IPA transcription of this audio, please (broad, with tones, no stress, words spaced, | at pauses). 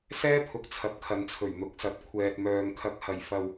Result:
sɛː˥pʰʊ˨˥k̚t͡sʰɐ˨p̚ kʰɐ˨˧nt͡sʰɵ˨˩ɥn̪ʊ˨˥k̚sɐ˨˥t̚ kʷʰɛː˨t̚mœː˨ŋ kʰɐ˨k̚hɐ˨˩jfɐ˨w